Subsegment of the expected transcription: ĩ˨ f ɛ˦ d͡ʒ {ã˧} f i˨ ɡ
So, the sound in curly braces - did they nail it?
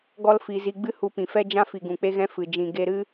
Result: no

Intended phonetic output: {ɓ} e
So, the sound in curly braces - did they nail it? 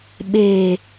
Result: yes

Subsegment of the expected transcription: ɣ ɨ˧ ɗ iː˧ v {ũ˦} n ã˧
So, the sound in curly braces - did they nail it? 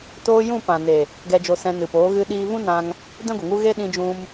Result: yes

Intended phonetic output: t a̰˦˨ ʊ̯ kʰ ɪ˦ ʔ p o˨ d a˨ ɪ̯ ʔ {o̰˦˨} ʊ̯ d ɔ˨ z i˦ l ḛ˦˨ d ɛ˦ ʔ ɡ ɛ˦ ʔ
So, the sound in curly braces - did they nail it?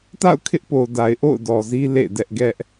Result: yes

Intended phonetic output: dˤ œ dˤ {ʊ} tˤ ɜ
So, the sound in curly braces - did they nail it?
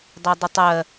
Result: yes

